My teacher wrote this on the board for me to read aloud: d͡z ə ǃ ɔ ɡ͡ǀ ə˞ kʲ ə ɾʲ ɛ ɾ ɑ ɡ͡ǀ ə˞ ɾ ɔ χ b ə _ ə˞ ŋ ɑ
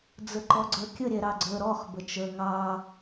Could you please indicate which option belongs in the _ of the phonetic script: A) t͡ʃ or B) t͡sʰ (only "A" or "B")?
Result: A